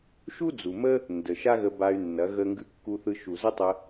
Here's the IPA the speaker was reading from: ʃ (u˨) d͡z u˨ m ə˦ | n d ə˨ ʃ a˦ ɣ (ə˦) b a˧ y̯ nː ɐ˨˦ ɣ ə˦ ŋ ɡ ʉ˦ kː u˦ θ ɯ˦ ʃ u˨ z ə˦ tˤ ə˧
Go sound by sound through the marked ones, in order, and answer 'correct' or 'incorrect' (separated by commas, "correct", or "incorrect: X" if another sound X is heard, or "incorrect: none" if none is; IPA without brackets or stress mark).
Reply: incorrect: u˦, incorrect: ə˧